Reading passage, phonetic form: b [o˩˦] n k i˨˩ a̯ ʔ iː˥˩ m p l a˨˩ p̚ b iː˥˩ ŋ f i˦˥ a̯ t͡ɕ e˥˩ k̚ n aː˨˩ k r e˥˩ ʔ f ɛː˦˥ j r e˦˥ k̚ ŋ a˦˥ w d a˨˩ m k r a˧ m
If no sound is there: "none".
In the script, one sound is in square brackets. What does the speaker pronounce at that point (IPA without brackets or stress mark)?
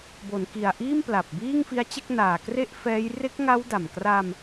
o˩˦